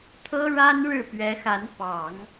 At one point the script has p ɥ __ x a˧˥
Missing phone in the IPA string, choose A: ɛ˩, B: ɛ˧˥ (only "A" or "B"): B